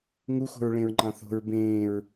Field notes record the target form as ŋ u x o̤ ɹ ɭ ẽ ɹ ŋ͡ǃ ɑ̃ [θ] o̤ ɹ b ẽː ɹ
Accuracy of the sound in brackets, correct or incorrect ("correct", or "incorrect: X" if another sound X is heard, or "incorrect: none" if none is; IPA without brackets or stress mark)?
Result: correct